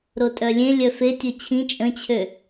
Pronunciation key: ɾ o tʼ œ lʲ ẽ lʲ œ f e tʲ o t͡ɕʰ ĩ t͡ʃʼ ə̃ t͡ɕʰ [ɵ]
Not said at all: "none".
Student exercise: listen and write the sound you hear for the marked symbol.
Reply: ø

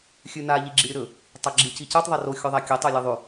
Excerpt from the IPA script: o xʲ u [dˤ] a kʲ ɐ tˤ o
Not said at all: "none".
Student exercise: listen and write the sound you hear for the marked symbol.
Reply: ðˤ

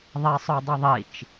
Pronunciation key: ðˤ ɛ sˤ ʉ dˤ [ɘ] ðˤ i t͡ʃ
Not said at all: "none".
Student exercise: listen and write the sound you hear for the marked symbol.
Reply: ɘ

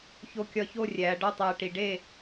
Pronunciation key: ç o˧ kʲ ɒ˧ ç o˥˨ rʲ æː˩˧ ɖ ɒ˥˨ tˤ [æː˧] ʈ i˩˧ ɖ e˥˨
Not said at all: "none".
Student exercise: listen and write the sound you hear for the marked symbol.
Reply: æː˧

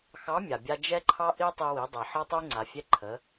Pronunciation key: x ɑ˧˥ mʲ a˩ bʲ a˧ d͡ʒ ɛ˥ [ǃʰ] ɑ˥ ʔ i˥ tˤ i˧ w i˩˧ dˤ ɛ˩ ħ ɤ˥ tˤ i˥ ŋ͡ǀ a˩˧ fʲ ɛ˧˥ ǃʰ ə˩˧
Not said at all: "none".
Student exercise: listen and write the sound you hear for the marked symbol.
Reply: ǃʰ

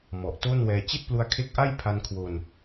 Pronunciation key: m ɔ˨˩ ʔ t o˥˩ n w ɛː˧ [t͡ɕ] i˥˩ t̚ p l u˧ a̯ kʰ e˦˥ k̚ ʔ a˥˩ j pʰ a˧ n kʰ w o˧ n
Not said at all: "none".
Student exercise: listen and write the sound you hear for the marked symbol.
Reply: t͡ɕ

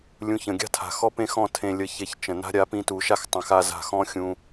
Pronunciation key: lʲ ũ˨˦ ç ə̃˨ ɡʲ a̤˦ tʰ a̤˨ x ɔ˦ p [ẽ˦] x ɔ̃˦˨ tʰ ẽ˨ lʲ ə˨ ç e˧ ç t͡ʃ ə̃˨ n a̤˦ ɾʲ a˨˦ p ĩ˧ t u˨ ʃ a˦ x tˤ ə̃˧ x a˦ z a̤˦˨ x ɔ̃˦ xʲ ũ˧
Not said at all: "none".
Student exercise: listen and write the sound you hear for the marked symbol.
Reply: ẽ˦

